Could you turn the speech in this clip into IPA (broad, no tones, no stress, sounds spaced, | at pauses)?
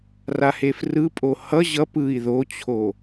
r a h e f r ɯ pʼ o h ʌ ʑ ʌ p ɯ i̯ ð o t͡ɕʰ o